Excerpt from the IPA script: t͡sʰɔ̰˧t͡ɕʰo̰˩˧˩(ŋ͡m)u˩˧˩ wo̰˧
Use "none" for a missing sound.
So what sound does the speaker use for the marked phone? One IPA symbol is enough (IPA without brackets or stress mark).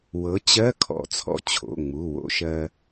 ŋ͡m